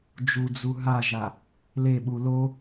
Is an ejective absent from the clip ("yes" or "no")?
yes